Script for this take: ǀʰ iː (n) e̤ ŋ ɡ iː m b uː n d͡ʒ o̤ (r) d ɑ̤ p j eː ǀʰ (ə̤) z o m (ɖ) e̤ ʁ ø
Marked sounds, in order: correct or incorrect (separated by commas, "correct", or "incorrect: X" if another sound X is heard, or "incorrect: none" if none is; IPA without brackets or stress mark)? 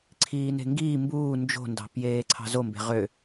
correct, incorrect: n, incorrect: ɑ̤, incorrect: b